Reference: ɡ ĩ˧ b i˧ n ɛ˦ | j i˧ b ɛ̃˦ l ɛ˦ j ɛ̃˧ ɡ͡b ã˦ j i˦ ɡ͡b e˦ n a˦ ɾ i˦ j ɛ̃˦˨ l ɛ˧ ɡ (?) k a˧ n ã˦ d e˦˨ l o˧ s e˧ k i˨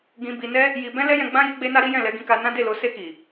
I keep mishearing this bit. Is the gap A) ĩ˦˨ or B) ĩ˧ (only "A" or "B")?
B